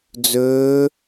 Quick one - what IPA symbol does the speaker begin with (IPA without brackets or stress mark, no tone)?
d͡z